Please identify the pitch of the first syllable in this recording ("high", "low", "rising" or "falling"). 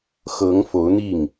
rising